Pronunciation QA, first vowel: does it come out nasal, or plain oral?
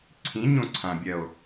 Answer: nasal